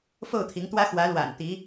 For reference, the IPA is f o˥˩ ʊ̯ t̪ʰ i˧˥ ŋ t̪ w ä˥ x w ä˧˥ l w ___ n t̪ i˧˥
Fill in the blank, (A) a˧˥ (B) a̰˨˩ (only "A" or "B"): B